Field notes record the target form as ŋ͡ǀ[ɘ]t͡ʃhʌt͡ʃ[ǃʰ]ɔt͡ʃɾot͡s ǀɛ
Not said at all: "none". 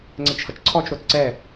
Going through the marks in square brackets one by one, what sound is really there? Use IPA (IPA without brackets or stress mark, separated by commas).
ɘ, ǀʰ